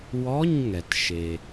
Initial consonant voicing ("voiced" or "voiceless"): voiced